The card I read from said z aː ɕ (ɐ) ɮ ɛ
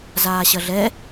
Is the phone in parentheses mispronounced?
no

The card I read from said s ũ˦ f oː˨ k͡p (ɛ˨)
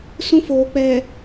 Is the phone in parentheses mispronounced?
no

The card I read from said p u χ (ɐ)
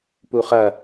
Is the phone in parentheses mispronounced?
no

